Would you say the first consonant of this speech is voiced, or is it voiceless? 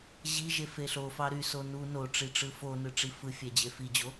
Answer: voiced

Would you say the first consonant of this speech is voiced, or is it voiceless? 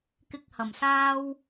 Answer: voiceless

